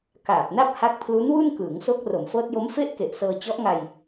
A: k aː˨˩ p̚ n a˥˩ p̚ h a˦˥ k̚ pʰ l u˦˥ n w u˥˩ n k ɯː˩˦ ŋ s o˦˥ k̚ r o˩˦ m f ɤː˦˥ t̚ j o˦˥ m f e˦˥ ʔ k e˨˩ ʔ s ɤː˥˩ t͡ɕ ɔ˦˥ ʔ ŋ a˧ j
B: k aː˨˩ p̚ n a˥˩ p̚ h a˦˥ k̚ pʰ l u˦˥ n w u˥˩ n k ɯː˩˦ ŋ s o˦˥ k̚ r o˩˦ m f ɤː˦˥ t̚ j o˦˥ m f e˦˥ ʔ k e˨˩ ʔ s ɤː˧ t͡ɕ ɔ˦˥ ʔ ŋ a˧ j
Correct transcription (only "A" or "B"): B